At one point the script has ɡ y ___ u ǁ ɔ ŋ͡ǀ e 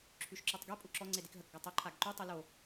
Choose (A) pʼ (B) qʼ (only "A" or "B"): A